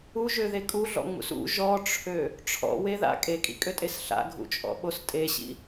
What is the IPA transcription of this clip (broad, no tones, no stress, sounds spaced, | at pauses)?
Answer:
u ʒ ø ð e kʼ u ɮ ɔ̰ ŋ͡m ṵ s ṵ ʒ ɔ ʈ͡ʂʰ ø | ʈ͡ʂʰ ɔ̰ w e ð a̰ kʼ e kʼ ḭ kʼ ø tʼ e s ɬ a̰ ɡʱ ṵ t͡ʃʼ ɔ̰ ɓ o s tʼ e ɕ ḭ